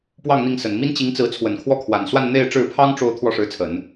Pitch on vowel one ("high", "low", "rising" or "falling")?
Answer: falling